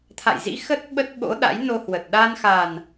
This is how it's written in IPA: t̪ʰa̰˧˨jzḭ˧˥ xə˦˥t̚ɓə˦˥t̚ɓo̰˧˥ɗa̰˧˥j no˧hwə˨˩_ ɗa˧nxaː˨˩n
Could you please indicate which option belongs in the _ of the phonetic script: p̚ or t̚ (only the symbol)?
t̚